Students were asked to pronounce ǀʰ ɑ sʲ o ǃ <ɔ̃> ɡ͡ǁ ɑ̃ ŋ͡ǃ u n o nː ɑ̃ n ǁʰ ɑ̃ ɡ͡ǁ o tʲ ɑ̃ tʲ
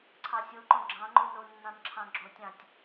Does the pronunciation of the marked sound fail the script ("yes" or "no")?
yes